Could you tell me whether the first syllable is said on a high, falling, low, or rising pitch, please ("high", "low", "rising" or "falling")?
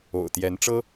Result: low